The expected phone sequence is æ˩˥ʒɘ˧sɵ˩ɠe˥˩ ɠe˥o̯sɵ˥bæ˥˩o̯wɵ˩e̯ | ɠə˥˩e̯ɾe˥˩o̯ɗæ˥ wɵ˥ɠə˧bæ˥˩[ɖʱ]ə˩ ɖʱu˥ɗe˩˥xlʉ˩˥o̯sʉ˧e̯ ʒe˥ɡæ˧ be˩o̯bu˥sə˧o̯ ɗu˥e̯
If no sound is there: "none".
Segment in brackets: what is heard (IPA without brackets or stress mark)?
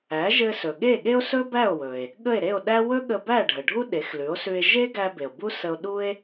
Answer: ɖʱ